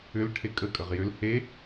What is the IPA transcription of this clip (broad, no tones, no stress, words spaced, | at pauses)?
ʏl ʈʰekʼə kʼəʁjʏl he